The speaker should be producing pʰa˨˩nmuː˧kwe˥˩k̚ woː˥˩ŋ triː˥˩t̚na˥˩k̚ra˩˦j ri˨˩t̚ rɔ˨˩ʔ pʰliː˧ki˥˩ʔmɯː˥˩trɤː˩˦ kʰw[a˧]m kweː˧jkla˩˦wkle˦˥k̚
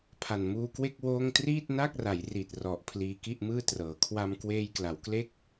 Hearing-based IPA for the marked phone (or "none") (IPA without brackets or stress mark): a˧